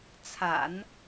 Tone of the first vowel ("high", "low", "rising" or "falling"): low